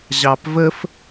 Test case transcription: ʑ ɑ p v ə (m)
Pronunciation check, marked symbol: incorrect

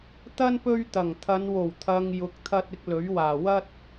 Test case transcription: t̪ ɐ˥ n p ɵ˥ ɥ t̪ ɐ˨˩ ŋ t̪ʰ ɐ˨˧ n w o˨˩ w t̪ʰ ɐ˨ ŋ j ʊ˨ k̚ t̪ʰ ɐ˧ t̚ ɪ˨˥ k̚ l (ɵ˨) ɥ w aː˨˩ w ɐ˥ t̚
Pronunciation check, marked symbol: incorrect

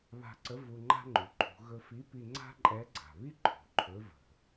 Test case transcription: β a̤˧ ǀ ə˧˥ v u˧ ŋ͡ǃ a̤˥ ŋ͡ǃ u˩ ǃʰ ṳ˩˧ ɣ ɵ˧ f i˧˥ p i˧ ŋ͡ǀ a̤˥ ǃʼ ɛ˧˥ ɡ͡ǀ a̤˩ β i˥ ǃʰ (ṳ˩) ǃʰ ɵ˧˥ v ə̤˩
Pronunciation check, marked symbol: correct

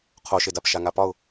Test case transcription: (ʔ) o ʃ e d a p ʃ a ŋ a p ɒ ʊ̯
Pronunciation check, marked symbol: incorrect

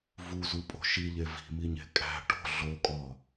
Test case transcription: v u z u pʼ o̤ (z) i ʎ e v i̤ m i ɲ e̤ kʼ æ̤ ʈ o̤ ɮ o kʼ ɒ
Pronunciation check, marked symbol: incorrect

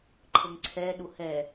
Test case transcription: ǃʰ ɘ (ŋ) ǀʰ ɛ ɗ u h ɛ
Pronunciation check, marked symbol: correct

